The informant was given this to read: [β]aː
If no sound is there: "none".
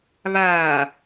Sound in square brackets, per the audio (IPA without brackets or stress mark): β